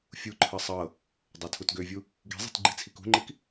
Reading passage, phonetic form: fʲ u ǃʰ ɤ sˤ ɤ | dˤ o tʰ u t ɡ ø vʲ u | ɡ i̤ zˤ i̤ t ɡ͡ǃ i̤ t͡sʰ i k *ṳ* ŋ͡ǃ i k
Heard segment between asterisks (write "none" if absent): ṳ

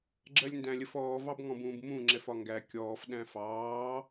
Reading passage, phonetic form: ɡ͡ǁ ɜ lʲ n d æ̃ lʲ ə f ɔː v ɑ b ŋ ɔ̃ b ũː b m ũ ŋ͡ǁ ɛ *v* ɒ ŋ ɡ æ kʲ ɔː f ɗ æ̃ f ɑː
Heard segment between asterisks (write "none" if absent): f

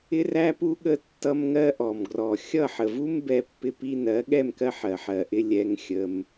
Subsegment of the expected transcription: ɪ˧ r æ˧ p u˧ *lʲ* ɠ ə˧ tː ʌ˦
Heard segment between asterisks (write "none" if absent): none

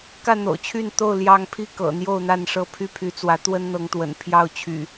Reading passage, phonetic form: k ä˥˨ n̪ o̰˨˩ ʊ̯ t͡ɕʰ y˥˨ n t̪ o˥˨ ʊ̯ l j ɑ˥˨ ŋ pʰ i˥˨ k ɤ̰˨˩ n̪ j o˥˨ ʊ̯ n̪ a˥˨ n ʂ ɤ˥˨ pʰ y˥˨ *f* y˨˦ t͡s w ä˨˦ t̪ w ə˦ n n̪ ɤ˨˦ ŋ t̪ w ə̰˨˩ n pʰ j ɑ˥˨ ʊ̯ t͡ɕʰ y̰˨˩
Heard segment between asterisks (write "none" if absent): pʰ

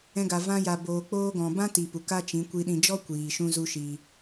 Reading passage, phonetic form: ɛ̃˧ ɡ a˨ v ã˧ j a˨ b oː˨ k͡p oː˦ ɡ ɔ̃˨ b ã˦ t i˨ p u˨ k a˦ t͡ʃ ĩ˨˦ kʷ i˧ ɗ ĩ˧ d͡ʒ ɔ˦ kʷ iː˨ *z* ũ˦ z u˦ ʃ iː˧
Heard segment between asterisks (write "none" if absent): ʃ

